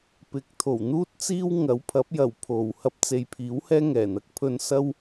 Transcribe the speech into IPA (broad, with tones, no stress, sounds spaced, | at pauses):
p ɪ˨˥ k̚ t̪ʰ o˨˩ w n̪ uː˥ t̚ t͡s iː˥ w ŋ ɐ˨˥ w pʰ ɐ˨˥ p̚ j ɐ˨˩ w pʰ o˨˩ w h ɐ˧ p̚ t͡s e˨ j pʰ iː˨˥ w h ɛː˥ ŋ ɛː˨˩ n̪ ɐ˧ k̚ pʰ ɵ˧ n s ɐ˥ w